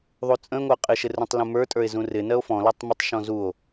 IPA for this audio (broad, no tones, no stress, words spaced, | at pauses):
ðˤut͡sʼə̃e̯ŋʷɜ qʼɪʃɪ rũtˤlũmə˞tʼə˞e̯ zũrɪnɜo̯ fɔ̃lɔtˤ mɪtˤʃɔ̃ zuo̯